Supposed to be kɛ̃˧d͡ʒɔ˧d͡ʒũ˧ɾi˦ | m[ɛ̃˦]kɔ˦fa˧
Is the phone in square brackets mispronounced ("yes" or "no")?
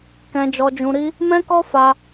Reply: no